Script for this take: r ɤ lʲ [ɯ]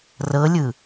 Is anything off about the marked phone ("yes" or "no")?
no